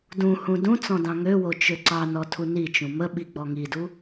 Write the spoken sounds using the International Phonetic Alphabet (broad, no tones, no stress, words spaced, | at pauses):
dũhũ dũt͡sɔ̃ dɑ̃ŋøwo t͡ʃøǀɑnɔ tʰunit͡ʃũ mə ɓiɡ͡bɔŋidu